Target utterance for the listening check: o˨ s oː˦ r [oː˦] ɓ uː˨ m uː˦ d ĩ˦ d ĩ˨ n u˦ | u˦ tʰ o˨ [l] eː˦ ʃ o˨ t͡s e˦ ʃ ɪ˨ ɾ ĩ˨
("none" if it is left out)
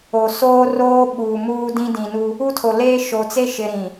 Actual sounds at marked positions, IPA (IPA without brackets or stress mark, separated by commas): oː˦, l